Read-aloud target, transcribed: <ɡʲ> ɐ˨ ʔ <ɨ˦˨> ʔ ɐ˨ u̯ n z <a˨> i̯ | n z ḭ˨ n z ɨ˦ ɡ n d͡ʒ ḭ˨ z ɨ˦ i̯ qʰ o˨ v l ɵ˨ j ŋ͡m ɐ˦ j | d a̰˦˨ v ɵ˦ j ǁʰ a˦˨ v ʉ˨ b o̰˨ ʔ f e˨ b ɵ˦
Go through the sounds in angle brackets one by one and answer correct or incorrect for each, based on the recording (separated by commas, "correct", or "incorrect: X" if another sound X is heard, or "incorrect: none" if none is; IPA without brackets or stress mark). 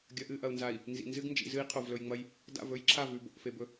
correct, correct, correct